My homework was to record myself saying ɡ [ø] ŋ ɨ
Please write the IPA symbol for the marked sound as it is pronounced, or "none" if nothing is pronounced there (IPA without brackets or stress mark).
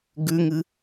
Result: ʉ